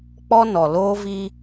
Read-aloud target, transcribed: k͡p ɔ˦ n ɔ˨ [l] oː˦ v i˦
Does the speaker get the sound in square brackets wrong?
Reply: no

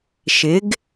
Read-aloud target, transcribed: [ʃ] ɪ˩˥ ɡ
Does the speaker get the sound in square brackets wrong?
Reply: no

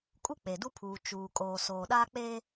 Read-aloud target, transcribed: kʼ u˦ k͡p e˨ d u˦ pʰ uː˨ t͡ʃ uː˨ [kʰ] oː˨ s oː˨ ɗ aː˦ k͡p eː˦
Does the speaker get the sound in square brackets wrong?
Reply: yes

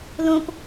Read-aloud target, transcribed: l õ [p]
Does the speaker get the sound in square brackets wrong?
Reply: no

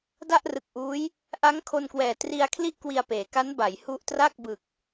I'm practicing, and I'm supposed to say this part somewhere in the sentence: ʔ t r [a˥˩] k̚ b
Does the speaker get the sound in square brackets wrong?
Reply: no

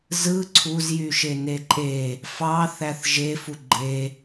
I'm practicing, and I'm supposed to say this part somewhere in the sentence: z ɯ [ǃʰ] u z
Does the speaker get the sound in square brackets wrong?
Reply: yes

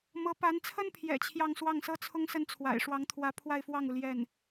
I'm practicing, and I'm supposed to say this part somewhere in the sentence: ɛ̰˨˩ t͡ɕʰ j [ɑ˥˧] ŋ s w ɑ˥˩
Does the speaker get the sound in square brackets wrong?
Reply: no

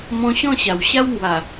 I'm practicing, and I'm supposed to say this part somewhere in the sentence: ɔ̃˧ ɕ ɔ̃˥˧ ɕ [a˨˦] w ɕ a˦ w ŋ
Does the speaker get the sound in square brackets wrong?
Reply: yes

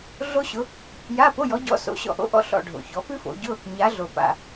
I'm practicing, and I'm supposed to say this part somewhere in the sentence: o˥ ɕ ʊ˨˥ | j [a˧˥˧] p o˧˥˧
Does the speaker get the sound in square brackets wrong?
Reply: no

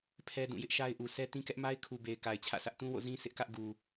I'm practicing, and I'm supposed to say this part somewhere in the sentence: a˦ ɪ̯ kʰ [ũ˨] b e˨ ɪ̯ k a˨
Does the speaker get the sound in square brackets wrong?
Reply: yes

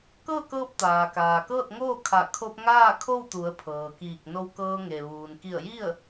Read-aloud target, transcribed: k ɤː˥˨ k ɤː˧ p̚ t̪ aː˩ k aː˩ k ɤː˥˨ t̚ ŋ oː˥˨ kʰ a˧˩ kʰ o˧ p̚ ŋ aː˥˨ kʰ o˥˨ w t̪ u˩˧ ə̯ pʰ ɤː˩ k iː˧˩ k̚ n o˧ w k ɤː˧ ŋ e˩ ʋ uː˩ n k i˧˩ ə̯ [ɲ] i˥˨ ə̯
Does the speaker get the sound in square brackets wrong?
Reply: yes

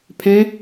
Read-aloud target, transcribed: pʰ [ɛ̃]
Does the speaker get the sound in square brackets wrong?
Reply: no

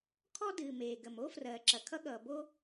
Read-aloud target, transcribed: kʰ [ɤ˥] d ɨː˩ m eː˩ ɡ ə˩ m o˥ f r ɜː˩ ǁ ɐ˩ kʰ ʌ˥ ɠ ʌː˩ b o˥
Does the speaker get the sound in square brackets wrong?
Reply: yes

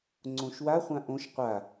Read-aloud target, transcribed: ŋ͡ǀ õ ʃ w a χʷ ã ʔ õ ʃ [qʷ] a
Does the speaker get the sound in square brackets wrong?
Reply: no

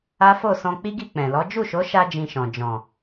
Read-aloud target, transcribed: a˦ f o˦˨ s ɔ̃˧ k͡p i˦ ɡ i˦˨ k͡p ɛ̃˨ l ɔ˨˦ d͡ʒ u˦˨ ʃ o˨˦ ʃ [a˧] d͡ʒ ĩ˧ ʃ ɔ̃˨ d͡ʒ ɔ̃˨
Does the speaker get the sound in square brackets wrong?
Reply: no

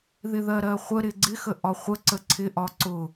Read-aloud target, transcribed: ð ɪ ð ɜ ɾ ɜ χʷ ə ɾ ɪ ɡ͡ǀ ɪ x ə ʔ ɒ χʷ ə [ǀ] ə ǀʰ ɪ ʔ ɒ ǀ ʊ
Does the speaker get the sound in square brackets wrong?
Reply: no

